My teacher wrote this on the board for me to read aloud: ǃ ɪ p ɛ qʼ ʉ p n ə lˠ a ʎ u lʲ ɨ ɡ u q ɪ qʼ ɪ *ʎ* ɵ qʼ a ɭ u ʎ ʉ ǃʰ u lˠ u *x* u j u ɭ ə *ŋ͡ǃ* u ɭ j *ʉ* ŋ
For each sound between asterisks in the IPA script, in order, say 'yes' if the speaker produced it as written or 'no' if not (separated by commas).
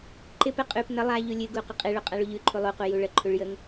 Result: no, no, no, no